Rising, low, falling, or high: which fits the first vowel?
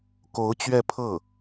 rising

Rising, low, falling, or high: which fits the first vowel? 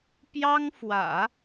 high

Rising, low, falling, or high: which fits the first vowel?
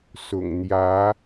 low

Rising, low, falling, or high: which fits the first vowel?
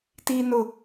low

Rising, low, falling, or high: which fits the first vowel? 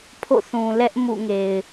falling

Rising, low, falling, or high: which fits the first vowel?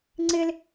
high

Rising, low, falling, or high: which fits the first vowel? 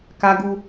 high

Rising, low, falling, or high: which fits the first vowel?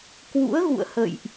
rising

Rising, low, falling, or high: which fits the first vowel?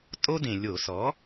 high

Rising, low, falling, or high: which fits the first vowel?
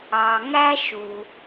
low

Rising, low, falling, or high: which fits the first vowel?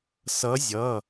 rising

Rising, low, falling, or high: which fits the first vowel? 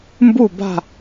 falling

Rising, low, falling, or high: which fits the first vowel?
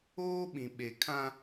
high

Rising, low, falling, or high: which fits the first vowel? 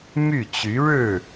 falling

